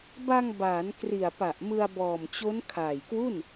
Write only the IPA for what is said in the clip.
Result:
ba˧ŋbaː˩˦n kri˨˩a̯pa˨˩ʔmɯ˧a̯ bɔː˨˩mt͡ɕo˦˥n kʰaː˨˩jkwu˥˩n

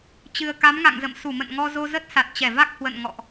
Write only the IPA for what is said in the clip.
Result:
t͡ɕɨ˨˩ə̯ka˨˦mŋa̰˧˨ŋzə̰˧˨m su˧˩mə̰˧˨nŋɔ˧zo˧ zə˦˥t̚sa˨˩t̚t͡ɕɛ˧˩va˦˥k̚ hwə̰˧˨nŋɔ̰˧˨ʔ

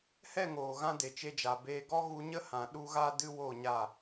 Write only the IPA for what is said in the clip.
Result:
hɛ˦˨ŋoː˨ɣã˧ de˨t͡ʃe˧d͡ʒa˨beː˧ ɡɔ˦ɣu˧ɲə˦hã˨ ɗu˦ɣa˦ dɨ˦wo˦˨ɲa˦˨

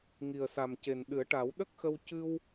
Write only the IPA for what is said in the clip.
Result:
ŋi˨˩ə̯sa˨˩mce˨˩n ɗɨ˨˩˦ə̯ʈa˨˩˦wɗə˦˥k̚xə˧w cɨ˧w

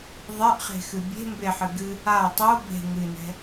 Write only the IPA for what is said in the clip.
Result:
ðˤɛʔχe̤xɨ bʲe̤ mbeħɨ ɡɨ | a tˤo be̤ ŋɨnɛ̤

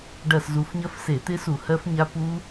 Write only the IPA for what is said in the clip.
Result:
ɖɐ˦˨szu˨˦f ɲɐ˦˥fse˧˩˧t̪ɪ˦˥su˧˩˧ hɜ˦˥fɲa˦˥pu˦˥

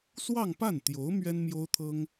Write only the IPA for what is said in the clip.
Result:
swɑ˥˧ŋpa˥˩nt̪jo˧˥ʊ̯ mɥɛ˥nmjo˥ʊ̯t̪ʰɤ˥ŋ

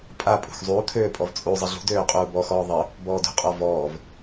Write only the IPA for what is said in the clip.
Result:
pʼa pʼṳxzˤuːt̪ʰøː pʼɔvt͡sʼuzˤɘ ɮṳ døːqʼuːbɔxɔː ðˤɘ | bɔːdṳqʼɔ vɔːv

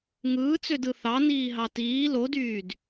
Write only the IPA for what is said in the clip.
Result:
ŋɯːt͡sødɯ θɑniːɦɑ tiː lodyːd

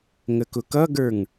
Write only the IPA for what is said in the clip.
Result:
ŋəkʊkʌɡə˞ŋ

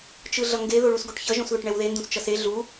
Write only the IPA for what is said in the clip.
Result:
t͡ʃɯɮʌŋɡe ðoɭusɡoʈçʌ ʒõsðoʈɳɛwðe ndũst͡ʃʌse ɮu

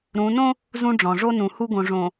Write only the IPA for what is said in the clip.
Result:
ɾũ˨˦ nõ˦ | zũ˦ɖ͡ʐɔ̃˨ ʐo˦nũ˨hu˦ɡõ˨ ʐõ˨

